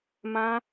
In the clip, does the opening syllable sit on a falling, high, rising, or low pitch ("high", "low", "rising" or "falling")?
high